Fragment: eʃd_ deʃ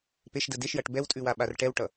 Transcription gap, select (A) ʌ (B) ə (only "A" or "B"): B